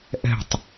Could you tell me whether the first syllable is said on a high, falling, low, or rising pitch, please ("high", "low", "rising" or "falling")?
falling